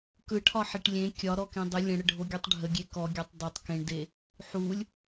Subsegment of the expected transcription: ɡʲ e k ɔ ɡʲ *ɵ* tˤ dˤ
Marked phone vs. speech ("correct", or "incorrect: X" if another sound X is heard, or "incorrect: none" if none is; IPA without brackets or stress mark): incorrect: ɔ